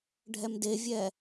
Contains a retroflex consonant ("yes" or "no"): yes